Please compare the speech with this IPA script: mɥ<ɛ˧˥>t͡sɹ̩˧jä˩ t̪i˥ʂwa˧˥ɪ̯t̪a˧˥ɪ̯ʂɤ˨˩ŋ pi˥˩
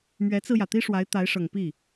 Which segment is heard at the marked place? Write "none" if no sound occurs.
ɛ˧˥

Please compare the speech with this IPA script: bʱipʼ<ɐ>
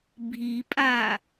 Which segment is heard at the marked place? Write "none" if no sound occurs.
a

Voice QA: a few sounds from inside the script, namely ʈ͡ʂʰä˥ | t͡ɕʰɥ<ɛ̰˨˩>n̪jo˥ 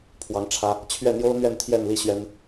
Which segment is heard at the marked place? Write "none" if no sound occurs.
ɛ˥˩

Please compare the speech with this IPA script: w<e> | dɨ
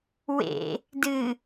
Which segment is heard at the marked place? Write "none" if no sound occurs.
ḛ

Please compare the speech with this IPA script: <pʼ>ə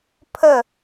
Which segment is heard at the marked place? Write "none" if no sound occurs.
pʰ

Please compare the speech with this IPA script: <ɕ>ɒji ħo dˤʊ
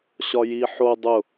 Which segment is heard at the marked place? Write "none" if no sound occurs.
ɕ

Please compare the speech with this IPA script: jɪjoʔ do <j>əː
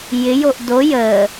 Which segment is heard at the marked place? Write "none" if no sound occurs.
j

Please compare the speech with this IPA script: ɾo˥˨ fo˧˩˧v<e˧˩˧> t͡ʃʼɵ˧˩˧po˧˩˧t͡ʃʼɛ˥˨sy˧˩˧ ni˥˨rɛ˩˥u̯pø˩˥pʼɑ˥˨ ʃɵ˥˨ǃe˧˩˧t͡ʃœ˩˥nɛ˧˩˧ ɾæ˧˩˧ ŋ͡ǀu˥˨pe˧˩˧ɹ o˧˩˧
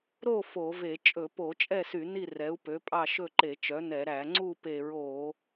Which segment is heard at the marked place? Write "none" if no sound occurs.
e˧˩˧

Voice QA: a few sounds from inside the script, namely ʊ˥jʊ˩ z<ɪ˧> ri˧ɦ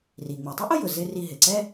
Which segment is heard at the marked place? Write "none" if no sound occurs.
ɪ˧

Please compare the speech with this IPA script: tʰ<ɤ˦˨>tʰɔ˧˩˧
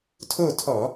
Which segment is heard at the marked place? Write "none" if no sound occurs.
o˦˨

